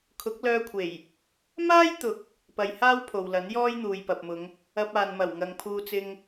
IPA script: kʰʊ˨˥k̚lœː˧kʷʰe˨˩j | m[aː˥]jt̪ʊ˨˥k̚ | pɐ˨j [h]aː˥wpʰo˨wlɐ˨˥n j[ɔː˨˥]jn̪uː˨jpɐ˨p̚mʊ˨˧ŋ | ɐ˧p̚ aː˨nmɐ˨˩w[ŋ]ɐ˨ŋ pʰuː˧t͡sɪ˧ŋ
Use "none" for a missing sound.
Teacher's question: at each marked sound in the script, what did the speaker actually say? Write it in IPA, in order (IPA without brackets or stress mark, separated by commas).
aː˥, h, ɔː˥, ŋ